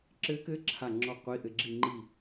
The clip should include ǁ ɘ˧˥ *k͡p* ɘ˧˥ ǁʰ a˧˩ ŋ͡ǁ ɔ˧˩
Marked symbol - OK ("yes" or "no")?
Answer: no